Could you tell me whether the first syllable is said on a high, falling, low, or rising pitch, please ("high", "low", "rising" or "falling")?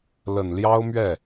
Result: low